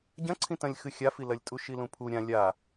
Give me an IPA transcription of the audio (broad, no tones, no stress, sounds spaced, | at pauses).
ɟ ɐ̃ ǀʰ ĩ t ɐ̃ lʲ x ɨ xʲ a f i l ɐ lʲ tʼ u ʃ i l ũ pʰ u ɾʲ ã lʲ a